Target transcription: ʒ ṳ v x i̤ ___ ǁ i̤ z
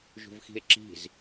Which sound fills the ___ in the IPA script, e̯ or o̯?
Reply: e̯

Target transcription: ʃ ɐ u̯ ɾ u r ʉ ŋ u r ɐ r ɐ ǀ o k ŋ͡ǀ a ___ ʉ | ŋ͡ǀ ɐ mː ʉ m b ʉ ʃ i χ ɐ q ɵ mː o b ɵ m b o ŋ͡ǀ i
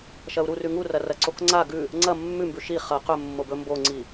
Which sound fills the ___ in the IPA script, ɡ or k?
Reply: ɡ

